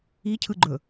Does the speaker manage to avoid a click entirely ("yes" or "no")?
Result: no